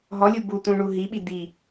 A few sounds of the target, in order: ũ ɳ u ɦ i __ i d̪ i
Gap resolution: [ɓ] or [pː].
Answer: ɓ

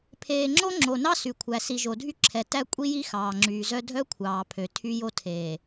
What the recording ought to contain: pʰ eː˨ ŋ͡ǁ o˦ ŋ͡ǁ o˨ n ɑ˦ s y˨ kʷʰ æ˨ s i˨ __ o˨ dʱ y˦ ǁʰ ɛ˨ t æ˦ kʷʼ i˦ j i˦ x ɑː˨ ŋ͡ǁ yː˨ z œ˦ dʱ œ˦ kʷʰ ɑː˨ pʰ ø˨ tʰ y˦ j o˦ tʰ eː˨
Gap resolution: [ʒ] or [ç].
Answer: ʒ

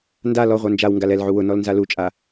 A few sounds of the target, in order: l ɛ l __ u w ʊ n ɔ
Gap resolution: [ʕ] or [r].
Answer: ʕ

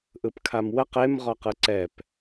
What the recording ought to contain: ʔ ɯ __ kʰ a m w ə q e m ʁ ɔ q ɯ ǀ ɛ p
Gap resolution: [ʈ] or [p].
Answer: p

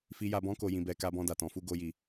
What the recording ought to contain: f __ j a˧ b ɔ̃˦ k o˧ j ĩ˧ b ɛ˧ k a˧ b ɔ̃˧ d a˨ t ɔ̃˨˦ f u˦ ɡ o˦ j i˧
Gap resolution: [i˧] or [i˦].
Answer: i˧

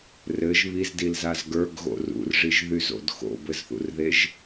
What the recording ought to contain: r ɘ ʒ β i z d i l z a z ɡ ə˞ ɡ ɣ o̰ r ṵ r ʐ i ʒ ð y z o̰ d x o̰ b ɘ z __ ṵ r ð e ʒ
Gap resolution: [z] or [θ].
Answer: θ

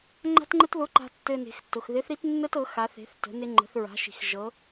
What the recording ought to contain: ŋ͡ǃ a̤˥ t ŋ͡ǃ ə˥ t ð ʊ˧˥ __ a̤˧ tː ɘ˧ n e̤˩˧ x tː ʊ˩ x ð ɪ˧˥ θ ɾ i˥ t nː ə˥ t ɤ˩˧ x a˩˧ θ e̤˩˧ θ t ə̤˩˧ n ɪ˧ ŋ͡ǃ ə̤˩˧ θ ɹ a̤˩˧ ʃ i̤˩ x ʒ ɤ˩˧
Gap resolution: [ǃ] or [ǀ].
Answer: ǃ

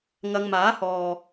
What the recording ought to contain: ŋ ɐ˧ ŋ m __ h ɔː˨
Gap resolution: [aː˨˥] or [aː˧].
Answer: aː˨˥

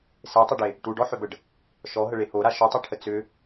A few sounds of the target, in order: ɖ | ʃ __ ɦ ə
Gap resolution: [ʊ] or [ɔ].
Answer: ɔ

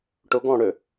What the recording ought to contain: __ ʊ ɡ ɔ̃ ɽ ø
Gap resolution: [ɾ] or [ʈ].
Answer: ʈ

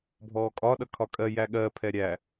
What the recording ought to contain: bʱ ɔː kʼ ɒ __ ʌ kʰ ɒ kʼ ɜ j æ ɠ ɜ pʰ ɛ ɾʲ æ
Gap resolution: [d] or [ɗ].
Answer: ɗ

